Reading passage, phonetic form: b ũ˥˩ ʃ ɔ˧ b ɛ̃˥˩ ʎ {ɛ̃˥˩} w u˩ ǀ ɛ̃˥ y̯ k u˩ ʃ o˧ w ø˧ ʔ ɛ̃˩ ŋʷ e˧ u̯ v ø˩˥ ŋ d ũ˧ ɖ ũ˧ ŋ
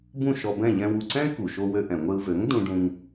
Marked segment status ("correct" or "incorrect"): incorrect